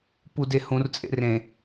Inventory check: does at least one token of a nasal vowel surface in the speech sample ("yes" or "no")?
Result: yes